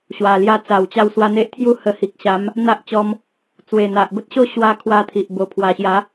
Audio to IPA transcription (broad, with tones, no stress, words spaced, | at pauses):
ɕwa˨˩lja˧ t͡sa˨˩wt͡ɕa˧w swa˧n̪e˦ʔt̪ʰju˥˧ hə˧hi˨k̚ ɕa˨˦m | n̪a˦ʔt͡ɕɔ˧m | t͡swe˨˩n̪a˨ʔbə˦t̚ɕo˥˧ ɕwa˦ kʰwa˦t̪ʰi˨ʔ bo˨˩pʰwa˨˩ɕja˨˦